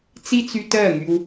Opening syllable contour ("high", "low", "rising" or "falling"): high